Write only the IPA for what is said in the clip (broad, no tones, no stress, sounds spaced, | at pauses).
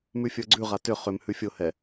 m ʉ fʲ ə˞ ɡ͡ǀ ʉ ʁ a t ʏ χ ʏ m h ʉ fʲ ʊ h ɛ